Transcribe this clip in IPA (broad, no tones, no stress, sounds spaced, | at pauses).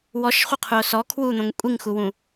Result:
w ɔ ʃ χʷ ɐ qʰ u o̯ s ɔ kʰ w u n̪ õ ŋ kʷʼ i ŋ x u w ũ